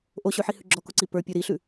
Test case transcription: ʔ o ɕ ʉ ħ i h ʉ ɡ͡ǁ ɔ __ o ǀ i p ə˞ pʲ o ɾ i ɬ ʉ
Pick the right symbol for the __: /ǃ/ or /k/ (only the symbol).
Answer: k